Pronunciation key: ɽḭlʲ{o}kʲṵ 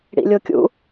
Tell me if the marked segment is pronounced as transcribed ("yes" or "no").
yes